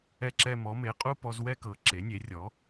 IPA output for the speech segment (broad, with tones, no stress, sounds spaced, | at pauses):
ɛ˧ ǁ ɛ˧ m ɔ˩˥ m e˩˥ qʼ u˥˧ p ɔ˧ z w ɛ˥˧ k ɤ˩˥ ǁ e˩˥ nʲ e˩˥ rʲ ɔ˩˥